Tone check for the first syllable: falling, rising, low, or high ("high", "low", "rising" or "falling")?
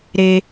low